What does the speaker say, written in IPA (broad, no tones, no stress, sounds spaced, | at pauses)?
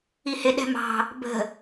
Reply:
i h ɪ ɗ ɛ̤ m ɑ̤ | b ə̤